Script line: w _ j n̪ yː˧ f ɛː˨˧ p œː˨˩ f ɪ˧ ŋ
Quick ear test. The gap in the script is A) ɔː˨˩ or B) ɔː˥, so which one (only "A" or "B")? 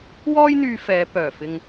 B